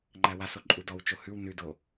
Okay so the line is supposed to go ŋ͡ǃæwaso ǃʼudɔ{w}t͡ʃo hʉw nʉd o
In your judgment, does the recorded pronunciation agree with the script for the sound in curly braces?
yes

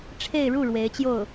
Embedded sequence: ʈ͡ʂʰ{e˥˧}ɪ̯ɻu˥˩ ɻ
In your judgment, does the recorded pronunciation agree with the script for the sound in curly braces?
yes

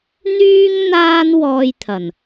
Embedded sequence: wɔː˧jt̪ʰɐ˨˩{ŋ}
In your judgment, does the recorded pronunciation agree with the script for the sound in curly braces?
no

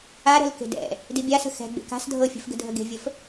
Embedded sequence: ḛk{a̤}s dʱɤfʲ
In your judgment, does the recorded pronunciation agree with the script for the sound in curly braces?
yes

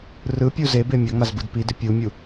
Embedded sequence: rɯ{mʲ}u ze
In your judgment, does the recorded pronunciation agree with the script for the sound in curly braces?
no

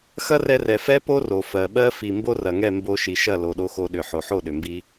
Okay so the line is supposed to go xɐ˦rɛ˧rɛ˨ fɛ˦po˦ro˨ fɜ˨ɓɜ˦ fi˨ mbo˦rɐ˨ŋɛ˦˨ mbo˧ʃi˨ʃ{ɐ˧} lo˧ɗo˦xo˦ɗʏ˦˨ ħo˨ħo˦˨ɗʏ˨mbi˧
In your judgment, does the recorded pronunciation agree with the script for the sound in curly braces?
no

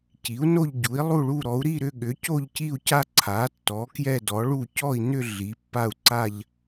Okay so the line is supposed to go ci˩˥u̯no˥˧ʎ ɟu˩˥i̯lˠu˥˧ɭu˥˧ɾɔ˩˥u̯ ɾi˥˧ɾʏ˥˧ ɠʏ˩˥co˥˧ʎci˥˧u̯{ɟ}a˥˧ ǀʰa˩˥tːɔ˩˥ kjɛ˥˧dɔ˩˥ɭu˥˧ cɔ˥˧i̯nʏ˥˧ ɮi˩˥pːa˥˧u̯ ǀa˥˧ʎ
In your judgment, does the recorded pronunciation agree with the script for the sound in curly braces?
no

